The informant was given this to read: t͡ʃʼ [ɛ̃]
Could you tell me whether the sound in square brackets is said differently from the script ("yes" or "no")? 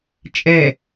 yes